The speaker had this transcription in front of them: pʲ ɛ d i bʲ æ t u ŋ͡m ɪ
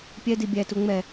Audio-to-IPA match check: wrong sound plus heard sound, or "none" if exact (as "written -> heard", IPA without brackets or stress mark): ɪ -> ɛ